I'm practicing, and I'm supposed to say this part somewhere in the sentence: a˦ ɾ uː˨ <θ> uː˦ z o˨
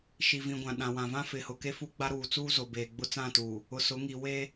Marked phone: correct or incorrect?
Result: incorrect